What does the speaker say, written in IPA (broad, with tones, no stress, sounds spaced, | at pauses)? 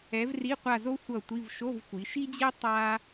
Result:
ɛ˨˥ v r i˧˥˧ qʷ a˦˨ z o˥ sʷ ʌ˦˨ tʷ i˧˥˧ v ʃ o˧˥˧ v sʷ i˩˧ ʃ i˥ d͡ʑ e˥ tˤ a˥